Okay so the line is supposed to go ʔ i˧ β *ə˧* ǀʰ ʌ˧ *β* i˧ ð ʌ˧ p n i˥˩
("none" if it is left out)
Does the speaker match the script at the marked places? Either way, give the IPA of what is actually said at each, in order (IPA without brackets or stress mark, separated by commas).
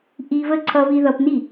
ə˥˩, β